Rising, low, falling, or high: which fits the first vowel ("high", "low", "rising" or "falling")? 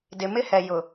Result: low